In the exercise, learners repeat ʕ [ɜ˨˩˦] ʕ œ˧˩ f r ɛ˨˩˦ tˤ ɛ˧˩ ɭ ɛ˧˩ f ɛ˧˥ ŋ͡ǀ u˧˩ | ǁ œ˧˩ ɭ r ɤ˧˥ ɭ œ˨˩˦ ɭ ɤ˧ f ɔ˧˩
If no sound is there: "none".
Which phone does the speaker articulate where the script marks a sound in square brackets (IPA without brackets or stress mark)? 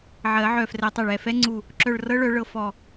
ɜ˨˩˦